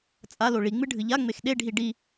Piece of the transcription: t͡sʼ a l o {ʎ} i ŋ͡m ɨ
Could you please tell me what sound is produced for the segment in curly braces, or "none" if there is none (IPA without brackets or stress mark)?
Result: ɭ